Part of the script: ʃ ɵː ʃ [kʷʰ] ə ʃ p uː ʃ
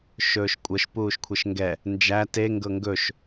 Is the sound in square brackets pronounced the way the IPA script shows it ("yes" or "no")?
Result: no